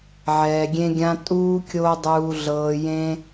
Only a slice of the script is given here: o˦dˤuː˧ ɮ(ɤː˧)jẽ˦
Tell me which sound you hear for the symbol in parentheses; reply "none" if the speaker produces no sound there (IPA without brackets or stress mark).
ɤː˧